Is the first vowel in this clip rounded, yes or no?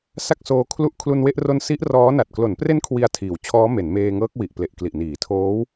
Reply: no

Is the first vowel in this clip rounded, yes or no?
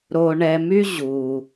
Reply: yes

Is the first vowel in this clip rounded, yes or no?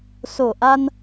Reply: yes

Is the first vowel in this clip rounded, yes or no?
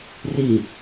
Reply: no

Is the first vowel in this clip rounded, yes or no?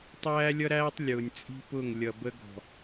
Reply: no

